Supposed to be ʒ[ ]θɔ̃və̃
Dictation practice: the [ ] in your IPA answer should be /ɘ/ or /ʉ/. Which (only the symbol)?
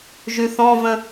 ʉ